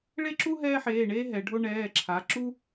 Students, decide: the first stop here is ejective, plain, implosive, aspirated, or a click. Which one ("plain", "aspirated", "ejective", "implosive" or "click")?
click